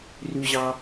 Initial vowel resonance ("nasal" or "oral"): oral